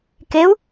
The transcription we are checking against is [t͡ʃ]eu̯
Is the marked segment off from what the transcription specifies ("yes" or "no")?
yes